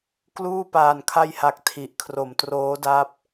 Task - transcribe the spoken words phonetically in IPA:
k l uː˥˩ p aː˨˩ n kʰ a˧ j h a˨˩ k̚ tʰ i˨˩ ʔ kʰ r o˩˦ m t r oː˦˥ d a˦˥ p̚

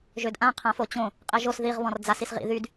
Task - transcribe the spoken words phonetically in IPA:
ʒ ø d ʔ ã qʰ ã f o t͡ɕ õ | qʼ e ʒ o s ð i ʁ β ɔ̃ r d͡z a s i s ʁ ḭ ð y d

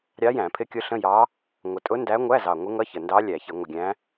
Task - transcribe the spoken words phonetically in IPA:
ɾʲ ɑ˧˥ j æ̃˧˩˧ pʰ ɪ˧˥ kʲ ʊ˧˥ ɬ ə̃˧˥˧ j ɑ˧˥ | ŋʷ ə˨˩ tʼ ʊ˧˥ n d æ˧˥ ŋʷ æ˧˥˧ z ɑ˨˩ ŋʷ ɪ˧˥ ŋ ʌ˧˥˧ ç ə˨˩ n d ɑ˧˥ lʲ æ˧˩˧ ç ɪ˧˩˧ ŋʷ ə˨˩ ɡʲ æ̃˧˥

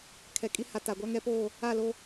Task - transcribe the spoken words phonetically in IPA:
kʰ ɛ˨ kʼ i˦ h a˨ t a˨ ɡʷ a˦ ŋ ɛ˦ p oː˦˨ | a˦˨ l o˦

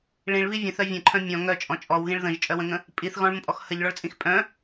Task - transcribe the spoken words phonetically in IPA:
ɭ ĩ ɭ β i vʲ ə̃ θ œ vʲ ə̃ ǃʰ œ̃ mʲ ɔ̃ ŋ œ t͡ʃʼ ɔ̃ t͡ʃʼ ɔ w ɣ ĩ ɭ ð ə̃ ʒ t͡ʃʼ œ w ə̃ ŋ ə̃ | pʼ i θ ɣ ɔ̃ ɭ m ə̃ pʼ ɔ x h ə ʎ ɭ ɔ ɭ t͡sʼ ĩ x pʼ œ̃

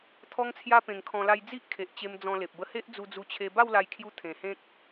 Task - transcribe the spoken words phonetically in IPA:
t̪ʰ ɔ˦ ŋ t͡sʰ j a˦ p ẽ˧ ŋ kʰ ɔ̃˧ l a˧ j d͡z i˦ ʔ kʰ e˨ ʔ t͡ɕ e˧ m d͡z ɔ̃˧ l e˨ p̚ b ə˧ h e˦ ʔ d͡z u˧ d͡z u˧ t͡ɕʰ e˧ b a˥˧ w l a˧ j kʰ j u˧ t̪ʰ ẽ˨˩ h ẽ˦ k̚

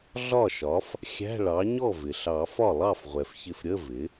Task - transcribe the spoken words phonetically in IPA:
ɮ ɒ˥˩ ʃ ɒ˩˥ f | xʲ æ̤˧˥˧ ɭ ɑ˩˥ ɲ ɔ˥˩ v ɪ˩ ɬ ɑ˨˩˦ f ɒ˥˩ lˠ ɑ˥˩ f ʁʷ ɛ˩ f ç ɪ˧˩ f ɾʲ ə˧˥˧ v ɪ˩˥

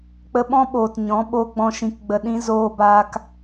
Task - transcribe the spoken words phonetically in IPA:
k͡p ə˧ ɓ ɔ̃˦ ɓ oː˨ t ɲ ɔ̃˨˦ ɓ o˧ ɡ͡b ɔ̃˧ ʃ ĩ˧ k ɡ͡b ə˧ ɗ ĩ˦ z oː˧ b aː˧ k

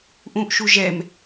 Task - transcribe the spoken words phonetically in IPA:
ʔ ũ ʔ ʃ u ʒ ɛ m

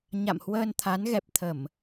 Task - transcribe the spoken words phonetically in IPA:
ɲ a̰˧˨ m h w əː˧ n t̪ʰ a˨˦ n ɣ ɛ˨˩ p̚ t̪ʰ ə˧˩˨ m

